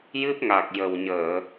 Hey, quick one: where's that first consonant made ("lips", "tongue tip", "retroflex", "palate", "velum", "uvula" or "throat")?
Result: palate